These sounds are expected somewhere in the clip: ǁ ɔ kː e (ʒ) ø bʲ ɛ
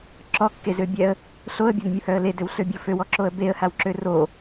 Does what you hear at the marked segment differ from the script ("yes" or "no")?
yes